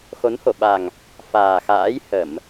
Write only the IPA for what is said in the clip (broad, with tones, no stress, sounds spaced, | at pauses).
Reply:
x o˨˦ n h o˧˩ ɓ a˨˩ ŋ | f aː˨˩ x a̰ː˧˥ j h ə˧˩˨ m